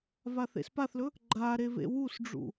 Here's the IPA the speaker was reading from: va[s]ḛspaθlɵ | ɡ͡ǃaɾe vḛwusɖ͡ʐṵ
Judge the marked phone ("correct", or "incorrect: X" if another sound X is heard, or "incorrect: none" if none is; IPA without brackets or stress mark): incorrect: θ